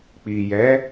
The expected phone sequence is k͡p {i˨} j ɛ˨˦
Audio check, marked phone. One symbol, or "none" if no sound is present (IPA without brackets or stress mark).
i˨